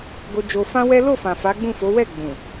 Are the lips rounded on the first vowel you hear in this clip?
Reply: yes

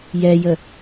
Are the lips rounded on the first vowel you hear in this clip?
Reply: no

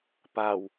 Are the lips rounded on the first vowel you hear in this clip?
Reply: no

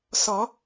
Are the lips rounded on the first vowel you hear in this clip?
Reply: yes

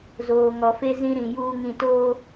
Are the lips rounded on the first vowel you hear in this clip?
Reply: yes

